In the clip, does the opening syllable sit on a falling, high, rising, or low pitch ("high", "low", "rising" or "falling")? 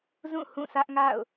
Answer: falling